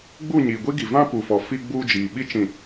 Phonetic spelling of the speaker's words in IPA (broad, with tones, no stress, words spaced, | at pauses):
ɡ͡bu˦˨ɲiː˨ɡʷi˦ɡi˨ vã˦pu˨fɔ˨ fi˦ɡ͡buː˦ d͡ʒiː˨ɓi˦t͡ʃĩ˨